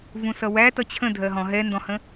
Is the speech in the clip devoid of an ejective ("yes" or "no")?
yes